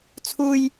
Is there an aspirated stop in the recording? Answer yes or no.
yes